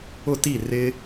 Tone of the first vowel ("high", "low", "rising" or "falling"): falling